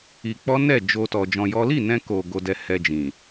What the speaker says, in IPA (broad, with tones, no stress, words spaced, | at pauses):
i˧ k͡pɔ˦nɛ˦˨d͡ʒo˧tɔ˨ d͡ʒɔ̃˧jɔ˦ li˦˨nɛ̃˧ko˨ ɡo˧ dɛ˧ hɛ˧d͡ʒĩ˨